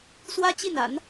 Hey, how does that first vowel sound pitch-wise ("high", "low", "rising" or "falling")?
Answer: high